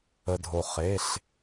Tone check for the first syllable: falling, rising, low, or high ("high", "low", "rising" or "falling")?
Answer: low